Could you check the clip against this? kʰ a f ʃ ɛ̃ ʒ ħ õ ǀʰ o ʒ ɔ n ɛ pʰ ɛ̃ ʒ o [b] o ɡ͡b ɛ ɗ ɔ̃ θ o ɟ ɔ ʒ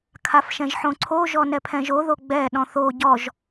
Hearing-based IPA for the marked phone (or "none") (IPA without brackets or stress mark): ð